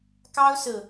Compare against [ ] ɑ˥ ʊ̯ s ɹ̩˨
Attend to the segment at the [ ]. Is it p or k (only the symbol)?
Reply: k